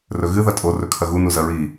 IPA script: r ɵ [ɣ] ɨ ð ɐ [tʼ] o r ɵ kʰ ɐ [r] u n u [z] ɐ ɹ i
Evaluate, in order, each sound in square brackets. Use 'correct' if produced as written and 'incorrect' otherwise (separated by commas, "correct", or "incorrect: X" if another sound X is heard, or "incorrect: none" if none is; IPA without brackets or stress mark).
correct, correct, incorrect: ɣ, correct